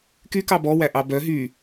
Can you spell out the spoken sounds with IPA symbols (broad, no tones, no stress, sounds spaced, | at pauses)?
k y k ɑ b ɔ w æ ʔ ɑ b œ ɦ y